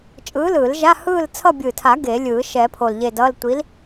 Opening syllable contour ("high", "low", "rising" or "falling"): rising